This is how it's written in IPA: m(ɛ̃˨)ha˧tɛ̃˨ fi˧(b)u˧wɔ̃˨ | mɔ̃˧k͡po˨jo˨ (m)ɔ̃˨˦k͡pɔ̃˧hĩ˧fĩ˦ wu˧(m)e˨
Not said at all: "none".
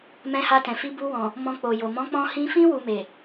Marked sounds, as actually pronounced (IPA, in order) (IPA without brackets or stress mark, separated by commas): ɛ̃˧, b, m, m